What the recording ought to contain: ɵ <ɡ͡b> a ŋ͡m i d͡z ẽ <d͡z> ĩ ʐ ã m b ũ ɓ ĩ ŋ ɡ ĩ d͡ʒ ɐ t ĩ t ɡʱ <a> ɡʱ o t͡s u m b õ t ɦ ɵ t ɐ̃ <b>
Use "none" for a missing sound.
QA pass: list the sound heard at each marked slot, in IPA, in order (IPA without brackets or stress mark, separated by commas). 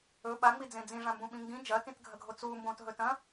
ɓ, d͡z, ɐ, none